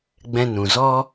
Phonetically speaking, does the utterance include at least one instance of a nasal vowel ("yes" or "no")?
yes